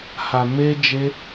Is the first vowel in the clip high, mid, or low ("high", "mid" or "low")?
low